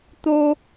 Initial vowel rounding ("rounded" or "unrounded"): rounded